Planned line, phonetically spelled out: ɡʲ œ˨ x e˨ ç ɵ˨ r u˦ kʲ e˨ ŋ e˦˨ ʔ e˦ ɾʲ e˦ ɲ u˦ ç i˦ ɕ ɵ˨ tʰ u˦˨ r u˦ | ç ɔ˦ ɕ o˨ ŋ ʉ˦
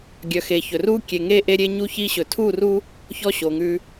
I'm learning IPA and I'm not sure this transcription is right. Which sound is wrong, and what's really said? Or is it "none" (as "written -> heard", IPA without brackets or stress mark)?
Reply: none